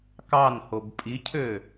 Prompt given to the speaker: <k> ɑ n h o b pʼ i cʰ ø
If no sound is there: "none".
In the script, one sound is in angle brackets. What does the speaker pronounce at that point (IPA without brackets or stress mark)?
k